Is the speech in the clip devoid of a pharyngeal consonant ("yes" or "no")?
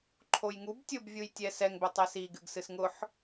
no